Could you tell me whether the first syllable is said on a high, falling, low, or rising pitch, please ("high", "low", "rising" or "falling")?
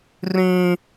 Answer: high